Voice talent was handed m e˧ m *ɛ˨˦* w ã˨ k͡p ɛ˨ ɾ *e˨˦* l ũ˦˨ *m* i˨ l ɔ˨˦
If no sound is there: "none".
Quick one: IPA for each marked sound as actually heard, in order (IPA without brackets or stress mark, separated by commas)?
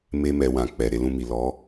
ɛ˨, e˨˦, m